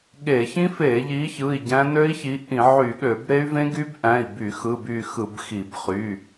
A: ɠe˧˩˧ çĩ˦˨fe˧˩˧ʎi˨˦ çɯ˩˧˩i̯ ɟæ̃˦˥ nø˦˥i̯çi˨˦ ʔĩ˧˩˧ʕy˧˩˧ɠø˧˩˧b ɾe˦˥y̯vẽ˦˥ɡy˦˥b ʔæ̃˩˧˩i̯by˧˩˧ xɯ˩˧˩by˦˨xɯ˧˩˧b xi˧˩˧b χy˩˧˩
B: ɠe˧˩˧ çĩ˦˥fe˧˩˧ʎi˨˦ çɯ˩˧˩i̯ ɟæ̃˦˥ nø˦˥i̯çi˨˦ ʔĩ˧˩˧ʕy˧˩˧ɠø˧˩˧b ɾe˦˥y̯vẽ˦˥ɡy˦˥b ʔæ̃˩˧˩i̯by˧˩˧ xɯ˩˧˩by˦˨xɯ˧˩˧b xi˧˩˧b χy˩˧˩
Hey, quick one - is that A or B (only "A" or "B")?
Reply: B